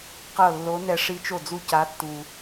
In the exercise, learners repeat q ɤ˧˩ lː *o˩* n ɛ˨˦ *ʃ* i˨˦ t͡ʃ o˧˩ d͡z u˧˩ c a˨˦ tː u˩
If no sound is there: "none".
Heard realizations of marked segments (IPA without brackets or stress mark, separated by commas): o˨˦, ʂ